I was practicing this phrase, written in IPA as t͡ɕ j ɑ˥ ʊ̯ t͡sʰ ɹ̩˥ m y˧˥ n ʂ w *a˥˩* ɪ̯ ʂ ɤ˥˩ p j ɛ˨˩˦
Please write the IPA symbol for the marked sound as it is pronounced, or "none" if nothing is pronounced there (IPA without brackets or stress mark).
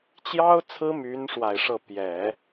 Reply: a˨˩